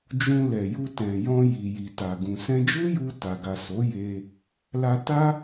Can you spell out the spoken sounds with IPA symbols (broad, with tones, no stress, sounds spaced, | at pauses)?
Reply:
d͡ʒ ũ˧ l ɛ˨ j u˧ t ɛ̃˨ j ɔ̃˧ j i˨ j i˨ t a˨ ɡ ũ˨ s ɛ̃˧ d͡ʒ u˦ j u˧ t a˨ ɡ a˨ s o˨˦ j e˧ | l a˧ t a˦